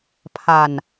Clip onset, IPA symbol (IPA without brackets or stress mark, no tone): pʰ